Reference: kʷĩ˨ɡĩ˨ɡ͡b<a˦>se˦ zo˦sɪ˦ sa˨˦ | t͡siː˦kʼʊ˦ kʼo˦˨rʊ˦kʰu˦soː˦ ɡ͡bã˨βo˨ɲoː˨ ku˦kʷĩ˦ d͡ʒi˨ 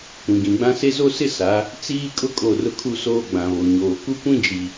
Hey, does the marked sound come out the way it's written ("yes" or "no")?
no